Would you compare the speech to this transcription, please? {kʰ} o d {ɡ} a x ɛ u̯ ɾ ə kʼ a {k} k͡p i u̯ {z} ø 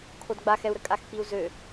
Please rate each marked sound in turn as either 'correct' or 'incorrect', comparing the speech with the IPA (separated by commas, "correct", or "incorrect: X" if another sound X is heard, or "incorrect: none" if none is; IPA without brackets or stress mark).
correct, incorrect: ɡ͡b, incorrect: x, correct